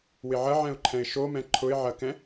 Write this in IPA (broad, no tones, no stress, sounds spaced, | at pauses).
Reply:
w ɪ ʕ ɐ ʕ ɛ̃ ʊ̯ ǃʰ ɛ̃ ɪ̯ ʃ o m ɛ̃ ǃʰ ʊ ɪ̯ ʕ ɐ k ɛ̃